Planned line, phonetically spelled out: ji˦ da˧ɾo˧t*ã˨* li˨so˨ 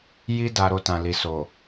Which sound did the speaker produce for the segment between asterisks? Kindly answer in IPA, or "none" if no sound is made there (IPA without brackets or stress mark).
ã˨